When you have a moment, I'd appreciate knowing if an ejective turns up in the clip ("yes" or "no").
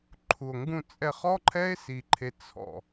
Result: yes